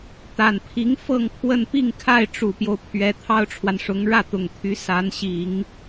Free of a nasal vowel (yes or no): yes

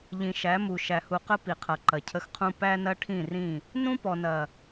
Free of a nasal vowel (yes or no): no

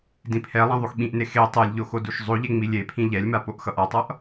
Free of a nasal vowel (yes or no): no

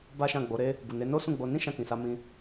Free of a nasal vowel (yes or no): no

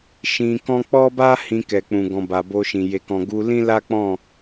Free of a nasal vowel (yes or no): no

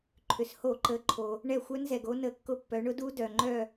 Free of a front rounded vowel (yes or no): no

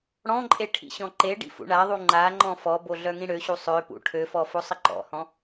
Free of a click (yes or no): no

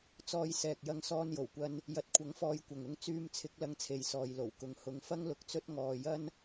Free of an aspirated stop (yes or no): no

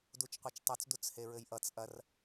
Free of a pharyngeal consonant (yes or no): yes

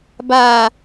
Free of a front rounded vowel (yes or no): yes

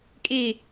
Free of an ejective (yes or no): no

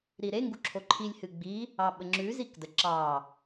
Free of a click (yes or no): no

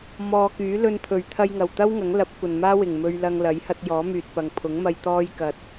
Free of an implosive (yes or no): yes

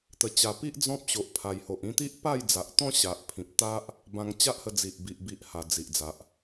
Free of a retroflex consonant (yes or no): yes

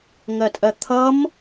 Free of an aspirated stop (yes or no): no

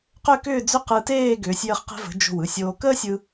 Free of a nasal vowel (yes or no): yes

